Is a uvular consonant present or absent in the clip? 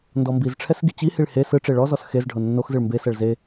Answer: absent